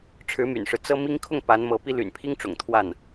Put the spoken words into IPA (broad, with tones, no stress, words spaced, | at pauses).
ʈ͡ʂʰɻ̩˧˥ my̰˨˩nʂɻ̩˦ t͡sɤ˥mi˥ŋ kʰʊ˥˩ŋ pa˧˥nmɤ˧˥pi˥ ly̰˨˩npʰi˥ŋʈ͡ʂʊ̰˨˩ŋ t̪ʰwa˥˩n